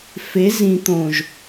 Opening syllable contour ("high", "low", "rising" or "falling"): rising